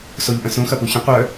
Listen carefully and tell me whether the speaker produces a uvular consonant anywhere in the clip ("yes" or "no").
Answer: yes